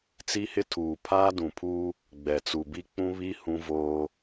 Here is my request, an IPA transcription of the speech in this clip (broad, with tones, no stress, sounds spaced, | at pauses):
t͡s i˦ h ɪ˦ tʰ uː˨ pʰ aː˦ d ũ˨ pʰ uː˦ | ɡ͡b ɛ˨ t͡s u˨ b i˦ k͡p ũ˦ β i˦ h ũ˦ v oː˦